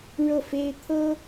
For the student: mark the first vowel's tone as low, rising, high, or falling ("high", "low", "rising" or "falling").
falling